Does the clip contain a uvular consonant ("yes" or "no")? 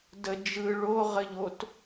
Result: yes